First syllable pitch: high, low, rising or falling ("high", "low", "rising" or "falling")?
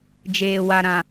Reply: low